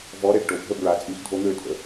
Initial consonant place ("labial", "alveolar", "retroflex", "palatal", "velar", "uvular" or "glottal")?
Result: labial